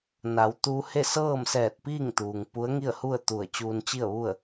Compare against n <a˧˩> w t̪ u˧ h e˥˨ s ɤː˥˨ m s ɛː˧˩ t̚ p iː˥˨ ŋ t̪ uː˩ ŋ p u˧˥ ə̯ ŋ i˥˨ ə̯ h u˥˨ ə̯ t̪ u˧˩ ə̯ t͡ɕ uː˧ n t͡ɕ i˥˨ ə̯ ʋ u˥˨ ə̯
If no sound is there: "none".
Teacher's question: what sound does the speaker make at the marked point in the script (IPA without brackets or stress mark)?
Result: a˩˧